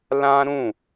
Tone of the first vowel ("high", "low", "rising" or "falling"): high